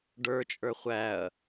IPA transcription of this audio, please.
ɖə˞t͡ʃʼə˞ χʷæɐ̯

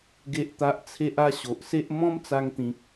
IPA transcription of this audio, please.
ɡe˦ʔt̪a˦ʔ t͡sʰe˦ʔa˦ ɕo˨ʔse˦ʔ mɔ̃˦mt͡sa˧ŋt̪ĩ˨k̚

